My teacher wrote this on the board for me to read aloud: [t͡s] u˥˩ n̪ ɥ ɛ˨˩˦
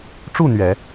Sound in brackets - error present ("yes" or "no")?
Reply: yes